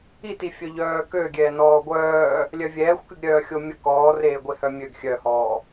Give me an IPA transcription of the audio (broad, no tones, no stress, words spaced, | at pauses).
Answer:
itifʲœ ʎœːkøɡʲɛː nɔːɡʷœː | lʲœvʲɛːxʷkyɡ ɾʲœːxʲomʲə kɔːreːɡʷe hœmʲøɡ xʲœhɔː